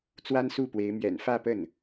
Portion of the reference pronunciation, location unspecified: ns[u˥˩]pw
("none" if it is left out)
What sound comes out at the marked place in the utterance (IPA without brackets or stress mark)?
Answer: u˥˩